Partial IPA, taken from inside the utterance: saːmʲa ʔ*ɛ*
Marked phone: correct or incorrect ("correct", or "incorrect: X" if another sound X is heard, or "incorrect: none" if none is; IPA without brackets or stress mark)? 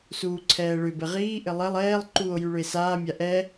correct